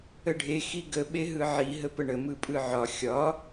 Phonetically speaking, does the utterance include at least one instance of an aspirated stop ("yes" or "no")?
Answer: no